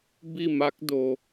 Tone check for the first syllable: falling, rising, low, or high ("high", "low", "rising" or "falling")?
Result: falling